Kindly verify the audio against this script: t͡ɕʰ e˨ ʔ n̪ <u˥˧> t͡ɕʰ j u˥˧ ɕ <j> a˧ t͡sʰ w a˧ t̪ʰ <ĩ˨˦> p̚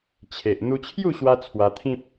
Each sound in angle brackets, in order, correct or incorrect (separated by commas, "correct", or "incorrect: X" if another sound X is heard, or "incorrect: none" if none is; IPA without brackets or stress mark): incorrect: u˧, incorrect: w, incorrect: ĩ˦